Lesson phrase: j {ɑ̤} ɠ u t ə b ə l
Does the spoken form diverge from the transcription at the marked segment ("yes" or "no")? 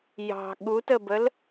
no